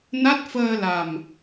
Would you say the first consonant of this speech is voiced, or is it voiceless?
voiced